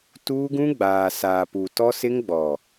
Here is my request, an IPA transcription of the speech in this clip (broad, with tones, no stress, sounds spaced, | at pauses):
t uː˦ ɡ ũ˦ ɡ͡b aː˨ s aː˨ p u˨ t ɔ˦ s ɪ˦ ŋ ɡ͡b ɔ˨